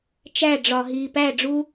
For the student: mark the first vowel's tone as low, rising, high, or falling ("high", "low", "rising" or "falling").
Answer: falling